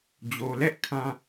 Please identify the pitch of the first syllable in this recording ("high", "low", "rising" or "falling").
low